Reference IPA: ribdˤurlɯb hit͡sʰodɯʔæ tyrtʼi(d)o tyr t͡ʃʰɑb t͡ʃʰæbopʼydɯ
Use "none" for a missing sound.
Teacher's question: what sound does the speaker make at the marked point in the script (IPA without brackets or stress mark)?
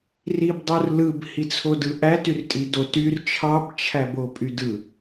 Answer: d